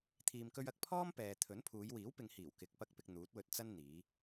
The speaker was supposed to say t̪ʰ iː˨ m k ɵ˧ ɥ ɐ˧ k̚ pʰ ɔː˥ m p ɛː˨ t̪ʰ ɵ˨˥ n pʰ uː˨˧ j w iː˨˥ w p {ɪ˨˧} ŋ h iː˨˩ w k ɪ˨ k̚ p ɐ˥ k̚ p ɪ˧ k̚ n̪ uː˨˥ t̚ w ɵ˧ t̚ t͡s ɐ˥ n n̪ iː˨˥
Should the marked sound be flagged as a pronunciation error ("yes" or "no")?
no